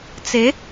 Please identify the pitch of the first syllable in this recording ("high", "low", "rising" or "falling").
rising